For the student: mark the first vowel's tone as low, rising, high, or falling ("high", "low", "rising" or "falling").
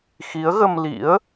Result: rising